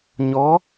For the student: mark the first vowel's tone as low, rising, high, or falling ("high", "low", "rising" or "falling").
rising